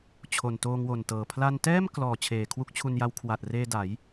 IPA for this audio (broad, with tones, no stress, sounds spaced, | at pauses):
t͡ɕʰ o˨˩ n t oː˧ ŋ w o˨˩ n t ɤː˨˩ pʰ l a˧ n t ɛː˥˩ m k l ɔː˨˩ t͡ɕʰ eː˨˩ kʰ w u˦˥ k̚ t͡ɕʰ u˧ n j a˦˥ w kʰ w a˨˩ t̚ r eː˧ d a˩˦ j